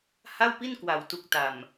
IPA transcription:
ha˥˩wpi˥˩nkwa˨˩w tu˨˩k̚ta˨˩m

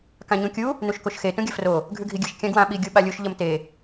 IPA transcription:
kãɲũkʲu | nuʃkoʃxe tũɡʲɐfro | ɡʱʉɡʱiɡʲɨʃ kʲãɡwã ɓi ɡʲuɓalʲuʃ ʎɐmte

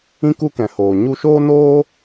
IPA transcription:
ĩ˦ku˦kɛ̃˨hoː˨ ɲu˧ʃoː˦noː˦

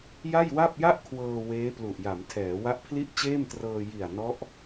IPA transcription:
ja˥˩jwa˥˩p̚ja˥˩ʔkʰwɤː˧ weː˦˥plu˨˩ʔja˩˦m tʰɛː˩˦ wa˦˥ʔpʰli˥˩ʔt͡ɕeː˥˩mtrɤː˧ ji˨˩a̯nɔ˦˥ʔ

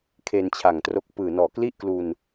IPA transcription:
kʰe˧nt͡ɕʰa˨˩ŋtro˦˥k̚ pɯː˨˩nɔː˨˩ kli˥˩ʔklu˧n

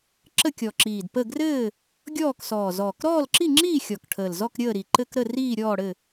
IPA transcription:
ǁə˥˨kʲɔ˨˩ǁiː˨˩d pə˥˨ ɡrɘː˥˨ | ɡʲɔː˥˨ksɔː˨˩ zɔː˨˩kɾɔː˥˨lǁi˥˨ŋ͡ǁiː˥˨ xʲɔ˨˩kʈʰəː˨˩lzɔ˥˨k ɾʲəː˥˨ɾi˨˩ǃɘ˥˨k ɾə˥˨ riː˥˨ɾʲɔː˥˨ɽɘ˥˨

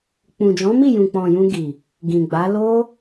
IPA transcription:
k͡pũ˨d͡ʒɔ̃˨˦mi˦˨ jũ˨k͡pɔ̃˨ jũ˧ɡi˨ | ɡĩ˨ɡ͡ba˨˦ lo˦

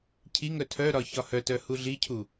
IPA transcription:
cʰiŋœ tʰœɾɒ çɒhœtœ huɮicʰu

